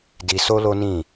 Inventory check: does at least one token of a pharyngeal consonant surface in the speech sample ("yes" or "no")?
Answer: no